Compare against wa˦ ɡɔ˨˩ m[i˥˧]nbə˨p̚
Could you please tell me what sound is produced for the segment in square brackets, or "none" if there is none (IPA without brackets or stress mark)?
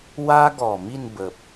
i˥˧